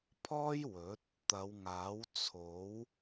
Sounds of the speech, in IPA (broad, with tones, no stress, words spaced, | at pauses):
pʰɔː˥j wɵ˨˥t̚ | t̪ɐ˨˧wŋaː˨˥w t͡sʰo˨˥w